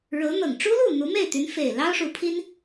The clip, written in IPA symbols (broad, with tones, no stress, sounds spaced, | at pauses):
ɻ ɤ˧˥ n̪ ɤ˨˩ ŋ ʈ͡ʂ u˥ l u˥˩ n̪ u˧˥ m e˥˩ ɪ̯ t̪ y˧˥ n f e˨˩ ɪ̯ l ɑ˥ ʊ̯ ʂ u˧˥ pʰ i˥ n